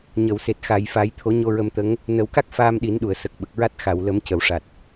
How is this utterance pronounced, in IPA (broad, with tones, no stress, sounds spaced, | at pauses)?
ɲ ə˨˩˨ w s e˨˩ t̚ x a˨˩˨ j f a˨˩˦ j t̪ʰ o˨˩˦ ɲ o˧ ɹ ə˧ m t̪ ə˧˥ ŋ | n ə˨˩˦ w k a˦˥ k̚ f aː˧ m ɗ i˨˩˦ n ɗ u˨˩˨ ə̯ s ə˨˩ k̚ ɓ ə˨˩ k̚ ɹ a˦˥ t̚ x a˨˩˨ w l ə˨˩˦ m c ə˨˩˨ w ʂ a˨˩ t̚